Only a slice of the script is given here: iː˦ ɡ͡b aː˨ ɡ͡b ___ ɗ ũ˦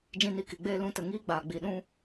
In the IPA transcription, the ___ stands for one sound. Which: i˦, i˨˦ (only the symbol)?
i˨˦